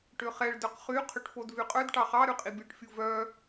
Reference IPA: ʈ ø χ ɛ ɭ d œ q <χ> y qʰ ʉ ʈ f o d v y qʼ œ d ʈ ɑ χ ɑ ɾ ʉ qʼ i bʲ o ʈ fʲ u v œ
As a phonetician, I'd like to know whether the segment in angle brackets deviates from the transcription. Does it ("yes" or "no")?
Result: no